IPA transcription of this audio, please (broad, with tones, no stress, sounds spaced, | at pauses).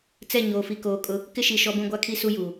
t͡s ɛ˦˨ ɲ oː˨ f i˨ k oː˨ kʼ ʊ˦ | k ɪ˦ ʃ i˨ ʃ ɔ˦ b ũ˦ ɡʷ a˦ kʰ i˦ s u˦ j uː˨